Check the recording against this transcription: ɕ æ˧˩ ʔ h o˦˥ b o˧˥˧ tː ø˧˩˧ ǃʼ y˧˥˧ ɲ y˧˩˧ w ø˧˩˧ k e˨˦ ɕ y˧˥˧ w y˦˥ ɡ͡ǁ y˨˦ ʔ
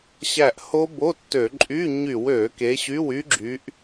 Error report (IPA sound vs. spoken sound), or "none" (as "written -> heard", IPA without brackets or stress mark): none